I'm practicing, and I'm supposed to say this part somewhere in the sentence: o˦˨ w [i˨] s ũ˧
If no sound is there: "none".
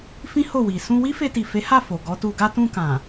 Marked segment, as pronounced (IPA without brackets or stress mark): i˨